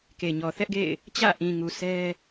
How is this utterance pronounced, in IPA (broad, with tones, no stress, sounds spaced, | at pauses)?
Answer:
k e˨ ɲ ɔ˨ θ ɛ˦ ʔ ɡ ḛ˦˨ ɪ̯ | t͡ɕ ä̰˦˨ ʔ ĩ˨ ŋ u˨ sʰ ɛ˦